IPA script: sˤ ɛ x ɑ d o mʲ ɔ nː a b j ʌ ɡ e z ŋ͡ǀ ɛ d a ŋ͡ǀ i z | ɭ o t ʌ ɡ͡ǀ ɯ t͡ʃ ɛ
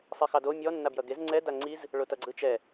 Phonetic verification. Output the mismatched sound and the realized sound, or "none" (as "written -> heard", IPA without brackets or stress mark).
none